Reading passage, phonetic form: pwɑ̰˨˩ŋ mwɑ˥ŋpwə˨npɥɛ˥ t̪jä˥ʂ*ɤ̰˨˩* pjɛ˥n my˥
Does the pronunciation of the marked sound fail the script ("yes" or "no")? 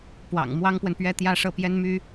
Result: yes